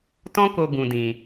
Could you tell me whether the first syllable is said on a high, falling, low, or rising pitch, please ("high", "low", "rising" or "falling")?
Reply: high